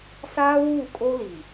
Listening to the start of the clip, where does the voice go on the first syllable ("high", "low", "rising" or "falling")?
high